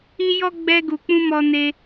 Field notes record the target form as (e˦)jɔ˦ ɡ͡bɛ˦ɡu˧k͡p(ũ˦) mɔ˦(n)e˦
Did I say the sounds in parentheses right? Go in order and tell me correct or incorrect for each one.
incorrect: i˦, correct, correct

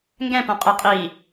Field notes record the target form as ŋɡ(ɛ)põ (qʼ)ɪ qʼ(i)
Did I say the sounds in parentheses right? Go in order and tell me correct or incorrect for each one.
incorrect: ɛ̃, correct, correct

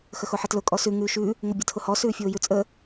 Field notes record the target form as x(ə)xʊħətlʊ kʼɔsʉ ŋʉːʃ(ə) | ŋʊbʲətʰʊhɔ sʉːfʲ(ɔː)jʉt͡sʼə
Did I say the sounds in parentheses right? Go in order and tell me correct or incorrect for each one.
correct, incorrect: ʉ, incorrect: oː

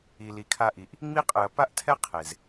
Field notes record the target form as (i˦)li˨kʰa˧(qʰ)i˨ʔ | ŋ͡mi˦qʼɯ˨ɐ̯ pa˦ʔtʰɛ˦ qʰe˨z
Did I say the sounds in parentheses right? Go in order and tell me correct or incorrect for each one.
incorrect: i˨, incorrect: ʔ

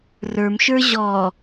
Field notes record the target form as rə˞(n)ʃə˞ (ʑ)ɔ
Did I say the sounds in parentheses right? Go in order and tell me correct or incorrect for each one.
incorrect: m, correct

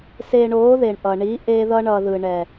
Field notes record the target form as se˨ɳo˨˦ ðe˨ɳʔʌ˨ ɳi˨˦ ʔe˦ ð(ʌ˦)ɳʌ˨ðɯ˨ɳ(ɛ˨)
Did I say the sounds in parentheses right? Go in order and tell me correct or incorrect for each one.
correct, correct

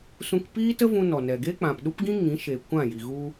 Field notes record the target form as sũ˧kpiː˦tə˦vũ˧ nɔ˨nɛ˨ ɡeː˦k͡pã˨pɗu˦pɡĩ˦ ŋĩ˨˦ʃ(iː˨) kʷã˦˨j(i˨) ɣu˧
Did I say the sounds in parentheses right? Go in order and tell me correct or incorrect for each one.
incorrect: eː˨, correct

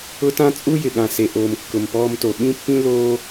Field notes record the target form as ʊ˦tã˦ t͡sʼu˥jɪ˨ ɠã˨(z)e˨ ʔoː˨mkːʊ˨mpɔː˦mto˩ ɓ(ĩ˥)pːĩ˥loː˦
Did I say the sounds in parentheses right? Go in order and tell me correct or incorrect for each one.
incorrect: s, correct

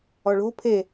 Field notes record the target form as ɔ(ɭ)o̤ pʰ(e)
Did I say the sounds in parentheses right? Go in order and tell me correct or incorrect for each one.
correct, correct

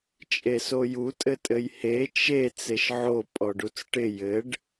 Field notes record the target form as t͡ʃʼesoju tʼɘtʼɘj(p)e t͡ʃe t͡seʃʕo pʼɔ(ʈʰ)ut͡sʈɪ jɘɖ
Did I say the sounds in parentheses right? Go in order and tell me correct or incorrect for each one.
incorrect: h, incorrect: ɖ

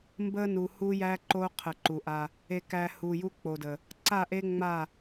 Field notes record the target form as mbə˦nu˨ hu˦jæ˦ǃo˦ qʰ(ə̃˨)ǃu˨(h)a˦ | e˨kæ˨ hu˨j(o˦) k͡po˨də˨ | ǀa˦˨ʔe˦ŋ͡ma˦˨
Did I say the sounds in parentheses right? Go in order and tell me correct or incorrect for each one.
incorrect: ə˨, incorrect: ʔ, incorrect: u˦

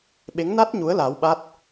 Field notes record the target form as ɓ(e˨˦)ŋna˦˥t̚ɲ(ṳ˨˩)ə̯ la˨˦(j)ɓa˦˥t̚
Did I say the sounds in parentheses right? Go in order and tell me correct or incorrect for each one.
correct, incorrect: u˨˦, incorrect: w

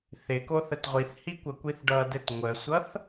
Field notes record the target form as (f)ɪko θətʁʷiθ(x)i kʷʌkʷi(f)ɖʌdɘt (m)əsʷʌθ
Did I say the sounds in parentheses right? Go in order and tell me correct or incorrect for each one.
incorrect: θ, incorrect: h, incorrect: θ, incorrect: ŋʷ

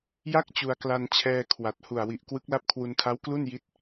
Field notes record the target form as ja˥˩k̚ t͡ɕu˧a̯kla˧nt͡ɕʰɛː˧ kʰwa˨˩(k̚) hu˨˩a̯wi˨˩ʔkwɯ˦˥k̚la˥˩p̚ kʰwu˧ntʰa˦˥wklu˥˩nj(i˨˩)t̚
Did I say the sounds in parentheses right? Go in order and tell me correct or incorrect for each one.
incorrect: t̚, incorrect: i˦˥

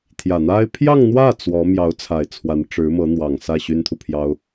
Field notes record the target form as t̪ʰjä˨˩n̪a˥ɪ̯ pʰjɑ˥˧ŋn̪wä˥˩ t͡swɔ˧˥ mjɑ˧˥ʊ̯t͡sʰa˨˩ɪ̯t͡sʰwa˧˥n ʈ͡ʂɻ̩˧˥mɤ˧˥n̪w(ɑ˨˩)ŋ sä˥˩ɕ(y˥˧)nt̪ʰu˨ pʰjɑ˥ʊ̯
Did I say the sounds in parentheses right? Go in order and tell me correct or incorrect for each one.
correct, incorrect: y˥

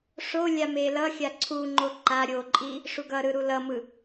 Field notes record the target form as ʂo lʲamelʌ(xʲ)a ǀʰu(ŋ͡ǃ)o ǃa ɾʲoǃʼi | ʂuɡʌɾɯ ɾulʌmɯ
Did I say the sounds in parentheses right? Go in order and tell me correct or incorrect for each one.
correct, correct

